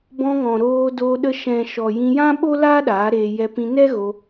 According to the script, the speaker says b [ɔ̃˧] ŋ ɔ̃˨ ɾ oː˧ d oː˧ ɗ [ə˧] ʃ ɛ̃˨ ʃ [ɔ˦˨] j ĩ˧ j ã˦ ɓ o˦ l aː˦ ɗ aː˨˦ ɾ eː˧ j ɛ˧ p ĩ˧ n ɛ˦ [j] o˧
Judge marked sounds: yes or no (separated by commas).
yes, yes, no, no